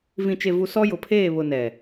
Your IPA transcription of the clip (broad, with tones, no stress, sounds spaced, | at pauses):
v ĩ˨ t͡ʃ e˨ v u˨ s ɔ˦ j ʊ˨ pʰ eː˦˨ β ʊ˨ n ɛ˨